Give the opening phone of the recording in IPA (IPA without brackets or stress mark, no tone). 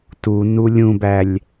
t